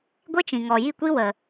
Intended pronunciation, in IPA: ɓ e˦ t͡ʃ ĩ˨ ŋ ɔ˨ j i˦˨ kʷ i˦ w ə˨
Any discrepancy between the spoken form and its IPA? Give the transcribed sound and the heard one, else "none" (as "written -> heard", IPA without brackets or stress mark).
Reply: ɓ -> ɡʷ